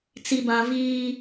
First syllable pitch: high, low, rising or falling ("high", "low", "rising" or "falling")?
low